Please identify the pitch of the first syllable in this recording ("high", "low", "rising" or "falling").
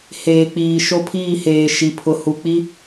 low